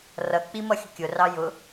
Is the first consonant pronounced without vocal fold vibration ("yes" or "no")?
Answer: no